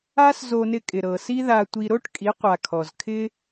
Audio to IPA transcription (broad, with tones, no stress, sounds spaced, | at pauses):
a˦ s z o˧ n ɪ˧ kʼ ɪ˨ ɾ ɤ˨ s i˦ ð a˧ tʷ i˧ ɾ o˦ ʈ kʼ i˨˦ qʷ a˨ kʰ ɔ˨ z kʰ ɪ˦